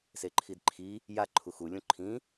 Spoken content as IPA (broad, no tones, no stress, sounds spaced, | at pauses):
s e ǃʰ i d ǃʰ i | j a ǃʰ u x u lʲ ũ ǃʰ ĩ